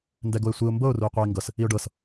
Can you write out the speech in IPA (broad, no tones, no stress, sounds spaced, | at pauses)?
n d ɛ ɡ o ɪ̯ sʷ i ʊ̯ m b ɤ ʊ̯ r u ɪ̯ qʷ ɛ ɪ̯ ŋ ɡ ɤ s | i ʊ̯ ɖ ɤ s